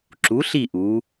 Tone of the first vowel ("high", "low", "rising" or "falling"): rising